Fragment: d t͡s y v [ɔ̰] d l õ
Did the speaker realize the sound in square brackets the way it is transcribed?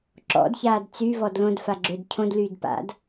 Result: no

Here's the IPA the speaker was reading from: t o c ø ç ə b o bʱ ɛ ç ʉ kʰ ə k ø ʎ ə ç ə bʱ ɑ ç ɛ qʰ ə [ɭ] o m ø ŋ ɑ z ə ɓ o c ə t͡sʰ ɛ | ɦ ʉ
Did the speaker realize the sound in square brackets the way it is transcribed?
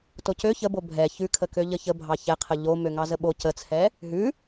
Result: no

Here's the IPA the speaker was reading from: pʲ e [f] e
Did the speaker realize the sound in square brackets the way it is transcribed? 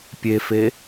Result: yes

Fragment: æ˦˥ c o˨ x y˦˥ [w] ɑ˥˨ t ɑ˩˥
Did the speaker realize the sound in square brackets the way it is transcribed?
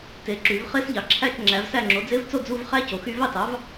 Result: no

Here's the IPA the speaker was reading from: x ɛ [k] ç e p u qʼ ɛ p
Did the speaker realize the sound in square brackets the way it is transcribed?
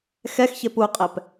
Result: no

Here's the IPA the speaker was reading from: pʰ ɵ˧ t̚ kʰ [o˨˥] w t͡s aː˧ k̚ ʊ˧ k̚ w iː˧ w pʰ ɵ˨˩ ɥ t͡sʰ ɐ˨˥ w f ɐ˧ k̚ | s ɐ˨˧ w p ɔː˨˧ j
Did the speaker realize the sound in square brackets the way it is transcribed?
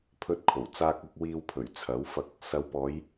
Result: no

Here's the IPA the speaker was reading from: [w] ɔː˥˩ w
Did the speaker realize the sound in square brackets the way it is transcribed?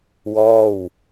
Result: yes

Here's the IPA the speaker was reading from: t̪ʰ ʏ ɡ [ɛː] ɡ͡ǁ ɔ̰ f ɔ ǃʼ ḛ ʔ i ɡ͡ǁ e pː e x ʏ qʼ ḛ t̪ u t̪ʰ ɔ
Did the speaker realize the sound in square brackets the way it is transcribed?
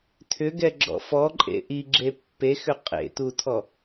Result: no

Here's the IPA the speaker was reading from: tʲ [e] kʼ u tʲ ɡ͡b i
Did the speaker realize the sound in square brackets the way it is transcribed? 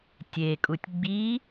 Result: yes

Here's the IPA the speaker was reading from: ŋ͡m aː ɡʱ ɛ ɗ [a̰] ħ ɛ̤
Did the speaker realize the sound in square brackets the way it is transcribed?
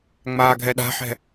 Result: no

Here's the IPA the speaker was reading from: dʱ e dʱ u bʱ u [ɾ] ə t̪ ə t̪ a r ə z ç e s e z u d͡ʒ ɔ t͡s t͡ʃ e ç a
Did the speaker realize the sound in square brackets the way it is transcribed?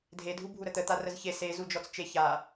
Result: yes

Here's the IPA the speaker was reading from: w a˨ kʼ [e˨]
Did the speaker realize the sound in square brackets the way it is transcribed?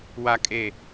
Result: yes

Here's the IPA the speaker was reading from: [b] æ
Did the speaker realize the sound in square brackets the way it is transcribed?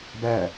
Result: yes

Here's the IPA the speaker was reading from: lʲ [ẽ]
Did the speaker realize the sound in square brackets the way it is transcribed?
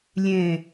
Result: yes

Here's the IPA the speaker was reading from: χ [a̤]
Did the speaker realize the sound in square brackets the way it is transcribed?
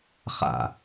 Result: no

